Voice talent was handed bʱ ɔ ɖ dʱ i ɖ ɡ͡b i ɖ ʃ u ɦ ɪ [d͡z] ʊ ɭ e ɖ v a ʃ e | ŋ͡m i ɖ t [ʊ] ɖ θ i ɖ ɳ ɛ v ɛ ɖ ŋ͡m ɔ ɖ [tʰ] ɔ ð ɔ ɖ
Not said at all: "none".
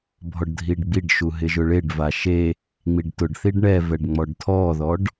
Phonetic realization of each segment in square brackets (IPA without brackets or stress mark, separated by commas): ʒ, ʊ, tʰ